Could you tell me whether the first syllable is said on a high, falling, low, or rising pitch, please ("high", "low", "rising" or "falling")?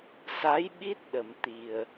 rising